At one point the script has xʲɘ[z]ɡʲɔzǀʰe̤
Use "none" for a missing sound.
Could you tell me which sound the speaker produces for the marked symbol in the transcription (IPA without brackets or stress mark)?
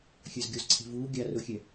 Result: z